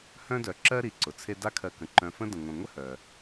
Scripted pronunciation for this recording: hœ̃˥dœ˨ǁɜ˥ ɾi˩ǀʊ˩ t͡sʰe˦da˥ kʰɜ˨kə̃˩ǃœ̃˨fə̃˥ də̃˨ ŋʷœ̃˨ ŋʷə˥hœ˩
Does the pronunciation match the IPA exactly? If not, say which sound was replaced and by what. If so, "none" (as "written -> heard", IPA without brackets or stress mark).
none